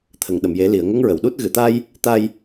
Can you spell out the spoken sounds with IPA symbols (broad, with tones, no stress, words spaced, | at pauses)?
t̪ʰə˨˩˨ŋɗə˨˩˨mje˨˩˦ li˨˩˨ə̯ ŋə˧˥ŋɹə˨˩˨wɗu˦˥t̚ ɣɨ˨˩˨t̪a˧j | t̪a˧j